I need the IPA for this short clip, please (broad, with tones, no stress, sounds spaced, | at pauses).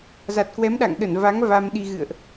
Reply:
z a˨˩ t̚ k w ɛ˨˦ m ɗ a̰˧˨ ŋ ɗ ə˧˩ n v a˨˦ ŋ v a˧ m ɗ i˧ ɣ ɨ̰˧˨ ə̯ ʔ